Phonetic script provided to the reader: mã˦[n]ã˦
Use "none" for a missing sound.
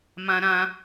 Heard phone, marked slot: ɾ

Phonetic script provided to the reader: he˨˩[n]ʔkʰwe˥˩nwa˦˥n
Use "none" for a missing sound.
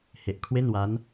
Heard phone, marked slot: none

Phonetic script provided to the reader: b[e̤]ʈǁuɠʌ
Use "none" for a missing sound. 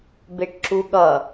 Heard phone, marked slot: e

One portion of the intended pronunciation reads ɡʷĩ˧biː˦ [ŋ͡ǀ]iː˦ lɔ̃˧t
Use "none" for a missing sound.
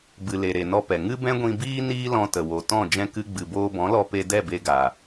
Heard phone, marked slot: n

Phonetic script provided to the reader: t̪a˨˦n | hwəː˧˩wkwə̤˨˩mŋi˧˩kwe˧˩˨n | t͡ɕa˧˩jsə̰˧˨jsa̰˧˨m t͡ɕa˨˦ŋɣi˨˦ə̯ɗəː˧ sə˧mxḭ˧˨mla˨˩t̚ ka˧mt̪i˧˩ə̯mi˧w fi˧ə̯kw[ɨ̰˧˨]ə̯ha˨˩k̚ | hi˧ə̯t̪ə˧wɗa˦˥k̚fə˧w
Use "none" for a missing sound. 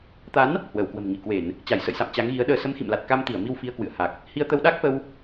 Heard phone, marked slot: ɨ̰˧˨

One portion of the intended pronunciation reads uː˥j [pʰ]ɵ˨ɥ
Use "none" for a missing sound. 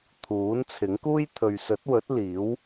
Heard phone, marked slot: t̪ʰ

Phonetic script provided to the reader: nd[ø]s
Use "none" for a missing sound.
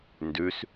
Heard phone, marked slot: ʉ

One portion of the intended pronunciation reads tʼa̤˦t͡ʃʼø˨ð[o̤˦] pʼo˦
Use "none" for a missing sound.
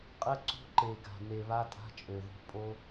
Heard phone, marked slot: o̤˦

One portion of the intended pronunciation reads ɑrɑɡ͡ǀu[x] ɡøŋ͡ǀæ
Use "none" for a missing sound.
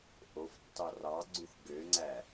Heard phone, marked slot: x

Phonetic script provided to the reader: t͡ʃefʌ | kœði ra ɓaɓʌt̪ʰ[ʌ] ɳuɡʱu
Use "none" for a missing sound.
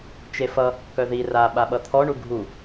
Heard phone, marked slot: ɔ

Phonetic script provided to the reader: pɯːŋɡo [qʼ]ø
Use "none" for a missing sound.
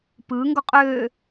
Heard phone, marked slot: qʼ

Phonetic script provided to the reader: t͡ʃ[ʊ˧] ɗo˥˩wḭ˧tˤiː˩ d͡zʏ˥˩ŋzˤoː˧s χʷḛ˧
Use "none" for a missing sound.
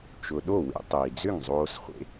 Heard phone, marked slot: ʊ˧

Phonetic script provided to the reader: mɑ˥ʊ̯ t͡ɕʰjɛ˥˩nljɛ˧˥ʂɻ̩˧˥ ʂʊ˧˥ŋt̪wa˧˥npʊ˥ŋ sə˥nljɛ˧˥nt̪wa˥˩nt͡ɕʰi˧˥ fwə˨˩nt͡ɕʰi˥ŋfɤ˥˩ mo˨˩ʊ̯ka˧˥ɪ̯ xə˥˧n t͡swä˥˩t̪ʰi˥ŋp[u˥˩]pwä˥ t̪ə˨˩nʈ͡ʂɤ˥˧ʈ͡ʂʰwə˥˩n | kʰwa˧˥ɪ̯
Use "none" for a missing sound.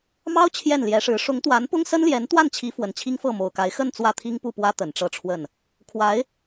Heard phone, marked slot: u˥˩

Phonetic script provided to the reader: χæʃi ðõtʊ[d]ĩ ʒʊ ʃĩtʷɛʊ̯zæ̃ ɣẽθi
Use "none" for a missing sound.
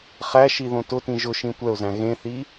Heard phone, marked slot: t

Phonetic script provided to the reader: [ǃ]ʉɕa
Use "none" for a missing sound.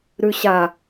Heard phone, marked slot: ɾ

